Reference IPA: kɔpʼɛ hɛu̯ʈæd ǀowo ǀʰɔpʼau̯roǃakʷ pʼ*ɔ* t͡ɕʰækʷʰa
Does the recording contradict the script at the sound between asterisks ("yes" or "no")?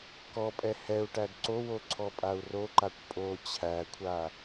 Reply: yes